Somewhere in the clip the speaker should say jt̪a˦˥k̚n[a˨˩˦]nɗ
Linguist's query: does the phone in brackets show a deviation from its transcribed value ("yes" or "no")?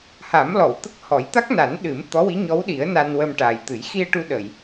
no